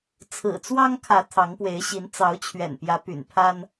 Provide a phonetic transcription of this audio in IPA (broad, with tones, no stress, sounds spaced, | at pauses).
t͡sʰ ɹ̩˨˩ t͡s w ɑ˦ ŋ kʰ ä˨˦ t̪ʰ ɑ˨˦ ŋ p w e˨˦ ɪ̯ ɕ i˨˦ n t͡s ɑ˨˦ ʊ̯ t͡ɕʰ ɥ ɛ̰˨˩ n p j ä˨˦ p y̰˨˩ n pʰ a˦ n